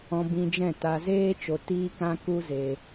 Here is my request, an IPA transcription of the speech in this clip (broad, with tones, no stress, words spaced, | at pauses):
ɔ̃˧bĩ˧d͡ʒɛ̃˦˨ ta˧zeː˦t͡ʃo˧ tiː˦kã˦ ku˦ze˧